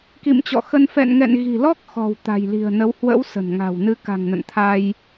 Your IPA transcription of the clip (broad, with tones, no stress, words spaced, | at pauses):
kḭ˧˨mt͡ɕɔ̰˧˨xə˧n fɛ̰˧˨nŋɛ̰˧˨n ɣi̤˨˩lɔ˦˥k̚ xɔ̤˨˩w t̪a̤˨˩jli̤˨˩ə̯nə˨˦w hwə̰˧˥w sə̤˨˩nŋa̤˨˩wnɨ˨˦ ka̤˨˩ŋnə̰˧˨n t̪ʰa˧j